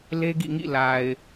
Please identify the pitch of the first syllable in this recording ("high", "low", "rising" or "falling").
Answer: high